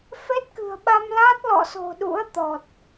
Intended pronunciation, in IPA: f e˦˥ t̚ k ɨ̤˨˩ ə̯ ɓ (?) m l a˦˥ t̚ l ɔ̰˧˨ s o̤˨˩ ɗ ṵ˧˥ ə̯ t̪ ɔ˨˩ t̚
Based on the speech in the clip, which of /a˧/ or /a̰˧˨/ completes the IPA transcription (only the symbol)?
a˧